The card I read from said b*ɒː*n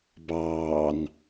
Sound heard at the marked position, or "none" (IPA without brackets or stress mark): ɑː